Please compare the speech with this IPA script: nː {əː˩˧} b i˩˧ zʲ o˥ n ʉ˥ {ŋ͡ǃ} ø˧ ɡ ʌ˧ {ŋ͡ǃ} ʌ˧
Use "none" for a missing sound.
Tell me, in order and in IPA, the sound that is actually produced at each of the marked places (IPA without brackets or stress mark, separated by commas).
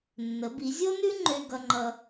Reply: ə˩˧, ŋ͡ǃ, ŋ͡ǃ